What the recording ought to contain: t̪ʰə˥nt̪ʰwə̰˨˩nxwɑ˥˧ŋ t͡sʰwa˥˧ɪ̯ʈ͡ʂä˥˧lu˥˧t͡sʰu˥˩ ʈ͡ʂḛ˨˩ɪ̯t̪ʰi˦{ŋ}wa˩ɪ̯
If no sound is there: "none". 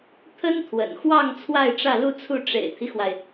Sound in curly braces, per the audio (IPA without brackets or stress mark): x